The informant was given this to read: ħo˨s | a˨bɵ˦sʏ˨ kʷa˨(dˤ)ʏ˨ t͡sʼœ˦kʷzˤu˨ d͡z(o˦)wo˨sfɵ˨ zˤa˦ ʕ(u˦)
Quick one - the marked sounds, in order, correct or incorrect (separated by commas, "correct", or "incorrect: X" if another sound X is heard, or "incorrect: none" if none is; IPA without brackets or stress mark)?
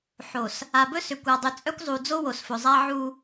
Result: correct, correct, correct